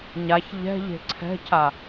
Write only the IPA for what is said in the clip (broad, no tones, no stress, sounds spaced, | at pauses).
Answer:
ɲ a ç ʎ ɛ̤ ʎ e̤ ǀʰ ɛ̤ cʰ a